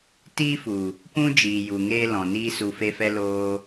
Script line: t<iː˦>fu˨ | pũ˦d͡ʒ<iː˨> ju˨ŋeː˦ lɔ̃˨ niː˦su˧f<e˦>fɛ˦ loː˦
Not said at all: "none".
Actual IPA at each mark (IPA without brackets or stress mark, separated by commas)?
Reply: iː˦, iː˨, e˦